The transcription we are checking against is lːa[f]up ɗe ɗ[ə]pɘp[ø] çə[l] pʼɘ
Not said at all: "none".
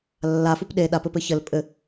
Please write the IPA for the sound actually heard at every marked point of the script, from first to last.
f, a, ɘ, l

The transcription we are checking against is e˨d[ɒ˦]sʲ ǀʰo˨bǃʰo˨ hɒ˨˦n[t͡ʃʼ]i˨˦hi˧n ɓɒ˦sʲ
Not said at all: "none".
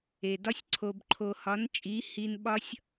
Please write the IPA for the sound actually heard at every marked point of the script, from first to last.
ɒ˦, t͡ʃʼ

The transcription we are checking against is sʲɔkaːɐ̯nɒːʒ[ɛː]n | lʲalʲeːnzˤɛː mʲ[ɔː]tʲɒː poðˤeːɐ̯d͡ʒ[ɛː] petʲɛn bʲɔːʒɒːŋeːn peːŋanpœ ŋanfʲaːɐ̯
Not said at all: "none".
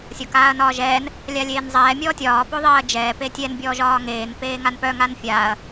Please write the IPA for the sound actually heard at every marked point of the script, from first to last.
ɛː, ɔː, ɛː

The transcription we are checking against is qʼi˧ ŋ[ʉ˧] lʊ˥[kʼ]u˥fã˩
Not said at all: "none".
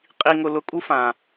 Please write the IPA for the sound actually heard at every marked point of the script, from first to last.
ʊ˧, kʼ

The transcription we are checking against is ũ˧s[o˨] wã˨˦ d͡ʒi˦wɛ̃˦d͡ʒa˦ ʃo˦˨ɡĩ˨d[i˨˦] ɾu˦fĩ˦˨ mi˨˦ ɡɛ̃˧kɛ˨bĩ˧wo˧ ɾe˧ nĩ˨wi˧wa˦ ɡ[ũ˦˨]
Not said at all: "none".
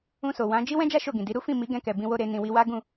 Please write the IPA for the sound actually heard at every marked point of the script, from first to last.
o˨, i˨˦, ũ˦˨

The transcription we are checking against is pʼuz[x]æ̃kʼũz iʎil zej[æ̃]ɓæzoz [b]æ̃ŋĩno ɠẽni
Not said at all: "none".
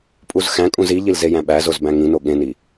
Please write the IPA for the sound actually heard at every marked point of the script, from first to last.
x, æ̃, b

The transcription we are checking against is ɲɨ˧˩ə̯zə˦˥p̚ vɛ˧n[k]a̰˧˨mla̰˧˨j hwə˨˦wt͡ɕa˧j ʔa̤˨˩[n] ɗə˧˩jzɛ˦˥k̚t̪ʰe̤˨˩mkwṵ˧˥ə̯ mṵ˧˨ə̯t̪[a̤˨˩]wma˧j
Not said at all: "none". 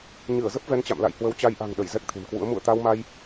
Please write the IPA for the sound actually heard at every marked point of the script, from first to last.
t͡ɕ, ŋ, a˧

